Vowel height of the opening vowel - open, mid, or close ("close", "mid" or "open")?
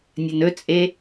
open